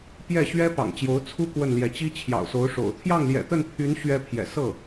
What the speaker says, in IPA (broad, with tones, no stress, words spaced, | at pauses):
pjɛ˥˩ɕɥɛ˥ pɑ̰˨˩ŋt͡ɕjo˧˥ʊ̯ t͡sʰu˥ kwə˥˩nljɛ˧˥ t͡ɕi˥t͡ɕʰjɑ̰˨˩ʊ̯so˧˥ʊ̯ʂo̰˨˩ʊ̯ t̪ʰjɑ˥˩ŋljɛ̰˨˩t̪ə˥˩npʰy˧˥n ɕɥɛ˥pʰjɛ̰˨˩ sɤ˥˩